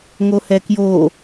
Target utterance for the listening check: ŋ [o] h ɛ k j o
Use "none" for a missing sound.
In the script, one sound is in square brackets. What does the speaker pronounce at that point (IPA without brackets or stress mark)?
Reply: o